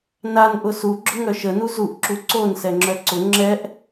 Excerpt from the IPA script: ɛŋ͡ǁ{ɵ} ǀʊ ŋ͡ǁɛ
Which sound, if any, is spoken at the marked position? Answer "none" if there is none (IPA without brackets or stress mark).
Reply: œ